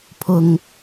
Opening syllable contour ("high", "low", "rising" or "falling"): low